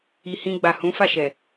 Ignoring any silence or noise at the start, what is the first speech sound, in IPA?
i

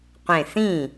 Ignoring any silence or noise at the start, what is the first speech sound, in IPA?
qʷ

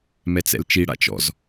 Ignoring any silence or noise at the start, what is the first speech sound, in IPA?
m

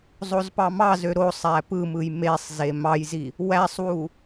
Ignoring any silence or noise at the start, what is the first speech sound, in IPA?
zˤ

